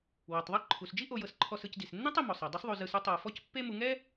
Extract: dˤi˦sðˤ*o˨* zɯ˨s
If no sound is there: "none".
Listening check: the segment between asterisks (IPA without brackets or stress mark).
o˨